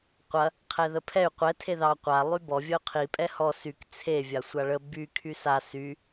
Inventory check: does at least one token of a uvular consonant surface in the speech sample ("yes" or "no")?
yes